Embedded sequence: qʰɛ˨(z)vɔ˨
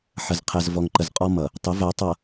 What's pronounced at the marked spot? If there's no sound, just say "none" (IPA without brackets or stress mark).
z